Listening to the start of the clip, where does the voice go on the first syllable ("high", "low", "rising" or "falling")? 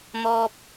high